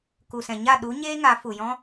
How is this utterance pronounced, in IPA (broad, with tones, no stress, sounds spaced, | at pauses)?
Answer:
k u˨ s ɛ̃˨ ɲ a˦˨ ɗ u˨˦ ɲ eː˦ ŋ a˨˦ f u˨ j ɔ̃˦